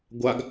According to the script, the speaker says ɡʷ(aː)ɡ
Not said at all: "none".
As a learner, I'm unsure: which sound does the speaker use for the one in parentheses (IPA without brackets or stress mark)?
a